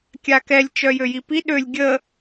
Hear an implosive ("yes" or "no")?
yes